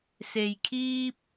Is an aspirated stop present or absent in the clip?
present